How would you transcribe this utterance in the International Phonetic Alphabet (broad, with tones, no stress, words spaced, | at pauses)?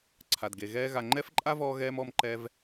ǀʰa˨d ɡe˨ ɣɛː˦ɣa˧ ŋ͡ǃɛ˦fǃʼa˦vɔː˧ɣɛː˧m ɔ˧mǃɛ˧v